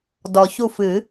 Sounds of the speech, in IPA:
d ɔ˨ ç u˦˨ f ɨ˨˩˦

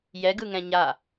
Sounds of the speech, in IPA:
j ɛ ɡ ɯ ŋ ɛ̃ ɲ a

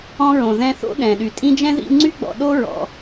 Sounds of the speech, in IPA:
ɔ̃˦ ɹ õ˩ ð ɛ̃˦ θ o̰˥ ɗ ɛ̃˩ ɗ y˩ tʼ ĩ˦ d͡ʒ ɛ̃˥ ð ḭ˦ ŋ͡ǀ y˥ ɡ͡b ɔ̰˨ ɗ o˥ ɹ ɔ̰˩

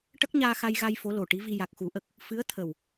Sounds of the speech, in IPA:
ʈ ə˦˥ k̚ ɲ aː˧ x a˧ j ɣ a˧ j f o˧˥ l o˨˩ ʈ i˧˥ v i˧ j a˨˩ k̚ x u˨˩˦ ʔ ə˨˩ k̚ | f ɨ˧˥ ə̯ t̪ʰ ə˨˩ w

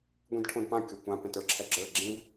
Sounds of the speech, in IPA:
ɡʷ ĩ d ʈʰ õ d p ã kʲ o kʷ ã p ɛ̃ t ə˞ ǁʰ ɛ ɡ͡ǁ ə˞ ɡ͡ǁ ĩ v

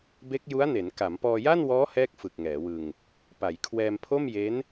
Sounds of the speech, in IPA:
b e˦˥ k̚ j u˦˥ a̯ n e˩˦ n k a˩˦ m p ɔː˧ j a˥˩ n w ɔː˦˥ h ɛː˥˩ k̚ f ɯ˨˩ k̚ ŋ ɛː˩˦ w ɯ˧ ŋ | p a˩˦ j kʰ w ɛː˧ m pʰ o˥˩ m j e˦˥ n

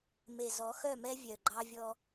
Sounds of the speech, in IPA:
m e˨ z ɔ˨˦ x œ˦˨ m ɛ˦ vʲ œ˨ ɡ͡ǃ ɑ˦ vʲ ɔ˦

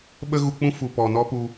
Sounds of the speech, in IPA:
ɓ ə˦ ɣ u˧ k͡p ũ˦ f u˨ p ɔ˨ n ɔ˦ p u˧

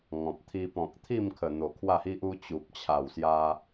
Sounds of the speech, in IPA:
ŋ ɔ̃˨ p̚ t̪ʰ i˧ p ɔ̃˨ k̚ t̪ʰ i˥˧ m kʰ ə˨˩ n̪ o˨˩ kʰ w a˥˧ h i˦ ʔ u˦ t͡ɕ u˨ p̚ t͡ɕʰ a˨˩ w s j a˧

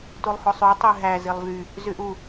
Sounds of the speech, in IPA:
t u lˠ h o sˤ y tˤ y ɦ æ z i lˠ v y | z y ʔ u

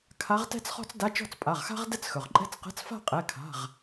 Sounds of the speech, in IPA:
kʰ a˧˥ ʁ t ɛ̤˥ t͡s χ ɔ̤˥ t͡s d a˧˥˧ t͡ʃ ɔ̤˥˧ t͡s pʼ a˩˧˩ ʁ x a̤˥ ʁ d ɛ˥˧ t͡s x ɵ˩ ʁ ǃʼ ɛ̤˥˧ t͡s q ɛ̤˧˥˧ t͡s f a̤˥˧ qʼ ɛ˩˧˩ kʰ a̤˩˧˩ ʁ

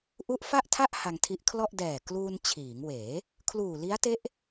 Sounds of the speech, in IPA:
ʔ u˦˥ ʔ f a˥˩ ʔ tʰ a˥˩ ʔ h a˧ ŋ tʰ i˦˥ ʔ kʰ l ɔ˥˩ ʔ d ɛː˨˩ k l uː˧ n t͡ɕʰ iː˩˦ ŋ w eː˩˦ | kʰ l uː˨˩ l i˦˥ a̯ t e˦˥ ʔ

